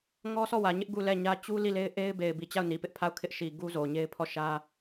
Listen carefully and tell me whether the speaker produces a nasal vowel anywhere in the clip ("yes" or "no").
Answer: no